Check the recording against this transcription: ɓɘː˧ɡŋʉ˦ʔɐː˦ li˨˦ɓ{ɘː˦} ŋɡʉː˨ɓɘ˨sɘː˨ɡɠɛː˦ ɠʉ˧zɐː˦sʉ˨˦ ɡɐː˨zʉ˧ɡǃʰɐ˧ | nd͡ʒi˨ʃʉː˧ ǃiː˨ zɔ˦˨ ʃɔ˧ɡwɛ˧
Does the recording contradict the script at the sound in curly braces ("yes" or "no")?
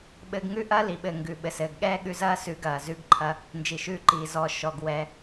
yes